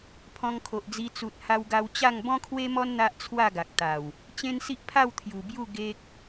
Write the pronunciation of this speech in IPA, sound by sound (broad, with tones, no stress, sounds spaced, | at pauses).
pʰ ɔ̃˧ ŋ kʰ o˨ ʔ d͡z i˧ t͡s u˨ t̚ h a˧ w ɡ a˧ w t͡ɕ a˥˧ ŋ b ɔ̃˦ kʰ w e˦ m ɔ˦ n n̪ a˦ ʔ t͡sʰ w a˥˧ ɡ a˨ k̚ t̪ a˨˩ w | t͡ɕ ẽ˦ n s i˦ ʔ pʰ a˥˧ w t̪ʰ j u˨˩ b j u˥˧ ɡ e˦ k̚